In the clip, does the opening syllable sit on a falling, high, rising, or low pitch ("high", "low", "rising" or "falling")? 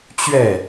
falling